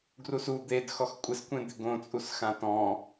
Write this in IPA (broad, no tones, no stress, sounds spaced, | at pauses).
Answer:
ɡ r u s u d̪ e d x ɔ x kʷʼ ɪ s kʷ ẽ d̪ ɪ ɡ õ t͡sʼ u s x ã t ɔ̃